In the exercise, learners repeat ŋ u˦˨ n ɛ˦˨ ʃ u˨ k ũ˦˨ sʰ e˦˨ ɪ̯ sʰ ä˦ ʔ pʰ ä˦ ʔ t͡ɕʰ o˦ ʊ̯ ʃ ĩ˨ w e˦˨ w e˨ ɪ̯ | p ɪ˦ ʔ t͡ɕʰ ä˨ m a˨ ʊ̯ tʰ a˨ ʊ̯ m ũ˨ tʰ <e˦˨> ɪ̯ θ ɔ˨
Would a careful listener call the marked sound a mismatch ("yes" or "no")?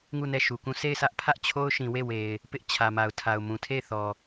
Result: no